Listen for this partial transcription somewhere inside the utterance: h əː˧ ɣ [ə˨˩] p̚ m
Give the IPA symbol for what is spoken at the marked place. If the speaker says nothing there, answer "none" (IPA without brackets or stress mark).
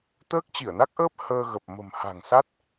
ə˨˩